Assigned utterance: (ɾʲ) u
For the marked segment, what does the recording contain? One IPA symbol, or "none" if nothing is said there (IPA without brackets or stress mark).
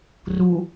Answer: r